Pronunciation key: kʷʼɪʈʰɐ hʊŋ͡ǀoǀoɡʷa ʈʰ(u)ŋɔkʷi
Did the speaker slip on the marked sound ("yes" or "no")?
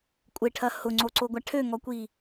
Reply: yes